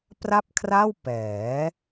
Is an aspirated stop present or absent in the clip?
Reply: present